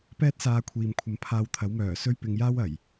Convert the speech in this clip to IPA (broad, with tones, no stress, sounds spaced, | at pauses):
p ɛː˥ t̚ s aː˧ kʷʰ iː˨ m kʷʰ ɐ˧ m pʰ aː˧ w t̪ʰ ɐ˨˥ w m œː˨˩ s ɵ˧ ɥ p ɪ˨ ŋ j aː˥ w ɐ˨˩ j